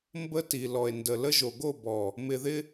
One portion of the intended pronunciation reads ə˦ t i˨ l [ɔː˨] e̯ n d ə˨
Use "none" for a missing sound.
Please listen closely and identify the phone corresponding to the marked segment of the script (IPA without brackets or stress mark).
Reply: ɔ˨